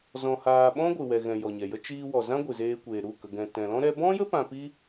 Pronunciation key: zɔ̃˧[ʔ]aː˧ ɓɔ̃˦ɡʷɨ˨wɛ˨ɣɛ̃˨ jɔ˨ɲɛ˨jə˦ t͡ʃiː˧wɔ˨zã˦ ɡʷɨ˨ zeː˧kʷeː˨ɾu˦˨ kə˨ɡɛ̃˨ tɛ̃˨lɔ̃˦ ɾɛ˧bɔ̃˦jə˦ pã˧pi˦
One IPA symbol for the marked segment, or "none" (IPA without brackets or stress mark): h